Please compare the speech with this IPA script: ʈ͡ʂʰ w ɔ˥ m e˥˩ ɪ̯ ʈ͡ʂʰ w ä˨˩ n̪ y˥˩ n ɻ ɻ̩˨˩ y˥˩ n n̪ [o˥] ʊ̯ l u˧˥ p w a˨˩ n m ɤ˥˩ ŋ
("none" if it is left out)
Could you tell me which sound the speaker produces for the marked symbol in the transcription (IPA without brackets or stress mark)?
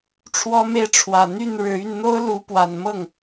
o˥